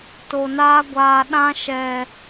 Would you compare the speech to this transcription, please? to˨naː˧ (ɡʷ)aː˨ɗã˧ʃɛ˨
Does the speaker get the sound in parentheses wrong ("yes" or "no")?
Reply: no